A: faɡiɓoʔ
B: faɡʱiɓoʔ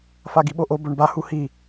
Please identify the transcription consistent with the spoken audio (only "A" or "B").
A